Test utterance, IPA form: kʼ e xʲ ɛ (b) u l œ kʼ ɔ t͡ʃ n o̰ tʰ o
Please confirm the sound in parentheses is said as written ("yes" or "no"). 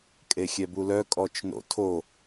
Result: yes